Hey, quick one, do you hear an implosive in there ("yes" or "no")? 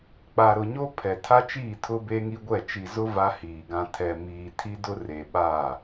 yes